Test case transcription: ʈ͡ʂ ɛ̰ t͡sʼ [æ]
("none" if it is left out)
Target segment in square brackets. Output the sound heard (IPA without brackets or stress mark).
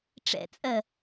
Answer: ɜ